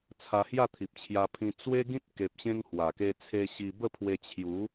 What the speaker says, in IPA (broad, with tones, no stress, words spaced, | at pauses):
t͡sʰa˧hja˥˧t̪ʰi˨p̚t͡ɕʰja˧ pʰĩ˧ t͡swe˦ɡĩ˦t̚ ke˨p̚ɕẽ˧ŋ hwa˨˩ ke˧t͡sʰe˧ ɕi˧ bə˥˧pʰwe˧ t͡ɕʰju˨˦